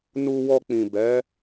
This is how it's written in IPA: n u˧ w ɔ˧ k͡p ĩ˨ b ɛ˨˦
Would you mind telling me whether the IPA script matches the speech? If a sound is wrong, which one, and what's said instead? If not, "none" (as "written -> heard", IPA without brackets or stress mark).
none